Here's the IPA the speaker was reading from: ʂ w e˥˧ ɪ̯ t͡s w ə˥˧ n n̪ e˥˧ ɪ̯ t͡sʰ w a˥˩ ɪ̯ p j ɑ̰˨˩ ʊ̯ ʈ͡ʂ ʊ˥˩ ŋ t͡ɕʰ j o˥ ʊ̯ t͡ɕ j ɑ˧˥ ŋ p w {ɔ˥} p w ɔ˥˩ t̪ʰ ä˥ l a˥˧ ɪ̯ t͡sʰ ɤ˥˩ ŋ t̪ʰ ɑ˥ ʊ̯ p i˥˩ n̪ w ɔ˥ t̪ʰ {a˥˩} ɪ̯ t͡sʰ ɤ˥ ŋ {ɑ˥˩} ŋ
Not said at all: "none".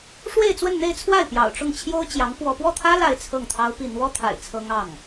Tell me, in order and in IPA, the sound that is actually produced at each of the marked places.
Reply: ɔ˥, a̰˨˩, ɑ˥˩

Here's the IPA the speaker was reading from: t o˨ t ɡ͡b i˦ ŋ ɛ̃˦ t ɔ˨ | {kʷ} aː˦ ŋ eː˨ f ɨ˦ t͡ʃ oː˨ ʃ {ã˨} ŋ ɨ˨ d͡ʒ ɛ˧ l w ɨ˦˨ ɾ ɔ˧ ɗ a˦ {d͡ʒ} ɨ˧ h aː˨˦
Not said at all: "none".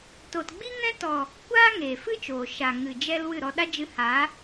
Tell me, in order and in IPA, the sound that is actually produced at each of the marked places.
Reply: kʷ, a˨, d͡ʒ

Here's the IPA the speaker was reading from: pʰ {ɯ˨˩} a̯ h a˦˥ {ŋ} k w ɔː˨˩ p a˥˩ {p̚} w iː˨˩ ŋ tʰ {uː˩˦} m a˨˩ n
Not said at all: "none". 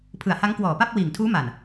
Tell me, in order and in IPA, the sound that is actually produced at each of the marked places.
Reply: ɯ˨˩, ŋ, p̚, uː˦˥

